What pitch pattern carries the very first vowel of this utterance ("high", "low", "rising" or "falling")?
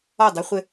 falling